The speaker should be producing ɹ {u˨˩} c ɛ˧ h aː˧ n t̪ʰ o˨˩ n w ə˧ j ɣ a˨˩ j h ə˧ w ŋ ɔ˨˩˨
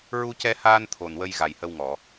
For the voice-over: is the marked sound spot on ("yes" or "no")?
no